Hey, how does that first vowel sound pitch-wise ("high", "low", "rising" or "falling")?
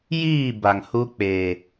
falling